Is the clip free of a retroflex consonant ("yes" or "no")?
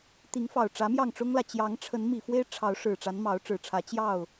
no